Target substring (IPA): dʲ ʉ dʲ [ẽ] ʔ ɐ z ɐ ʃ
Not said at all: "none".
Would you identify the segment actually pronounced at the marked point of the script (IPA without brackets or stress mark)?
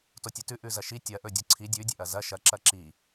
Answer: e